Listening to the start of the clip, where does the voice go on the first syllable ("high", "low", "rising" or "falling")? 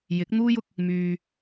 rising